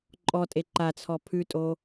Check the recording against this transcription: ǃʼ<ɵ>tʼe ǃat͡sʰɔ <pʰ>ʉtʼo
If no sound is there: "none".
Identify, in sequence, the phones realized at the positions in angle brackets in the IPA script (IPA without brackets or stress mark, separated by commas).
ɔ, pʰ